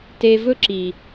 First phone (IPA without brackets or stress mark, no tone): t